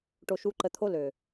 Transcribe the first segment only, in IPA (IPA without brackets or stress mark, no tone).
ʈ